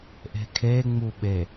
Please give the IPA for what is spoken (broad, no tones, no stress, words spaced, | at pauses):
ʔe̤kʰe ŋ͡muɓe